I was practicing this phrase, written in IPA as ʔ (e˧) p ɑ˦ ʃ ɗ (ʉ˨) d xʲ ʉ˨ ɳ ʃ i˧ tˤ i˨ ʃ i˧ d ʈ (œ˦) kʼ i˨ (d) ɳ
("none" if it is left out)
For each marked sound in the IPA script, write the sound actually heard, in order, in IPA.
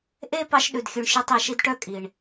e˧, ʉ˨, œ˦, none

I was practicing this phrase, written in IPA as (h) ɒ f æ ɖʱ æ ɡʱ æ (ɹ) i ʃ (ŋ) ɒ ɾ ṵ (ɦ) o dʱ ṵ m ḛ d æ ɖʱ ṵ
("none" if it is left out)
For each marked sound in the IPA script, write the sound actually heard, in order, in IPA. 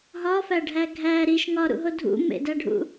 ɦ, ɾ, ŋ, ɦ

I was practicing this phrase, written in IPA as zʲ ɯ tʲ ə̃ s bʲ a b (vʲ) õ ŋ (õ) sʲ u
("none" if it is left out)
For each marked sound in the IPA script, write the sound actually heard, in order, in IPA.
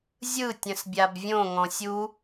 vʲ, ɔ̃

